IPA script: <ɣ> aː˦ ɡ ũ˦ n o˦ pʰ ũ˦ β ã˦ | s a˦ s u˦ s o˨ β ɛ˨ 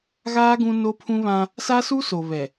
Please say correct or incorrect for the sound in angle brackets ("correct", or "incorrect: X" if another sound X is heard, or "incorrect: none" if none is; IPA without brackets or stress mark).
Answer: correct